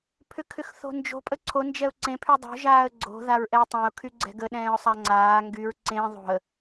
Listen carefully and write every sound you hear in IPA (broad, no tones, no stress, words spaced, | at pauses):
pʰʏkʰʏxθo̤nd͡ʒo̤ pʼəǀʰo nd͡ʒɛʊ̯ǀẽ pʰydˤo̤ ʒaːə̯ɡ͡ǀo̤ ðaɹʔɛʊ̯tˤẽʊ̯ kʰyɡ͡ǀɛ̤ɡə ɗɛ̃ːʊ̯sˤaŋ͡ǀaː ŋɡyɹ ǀẽ ðˤo̤ə̯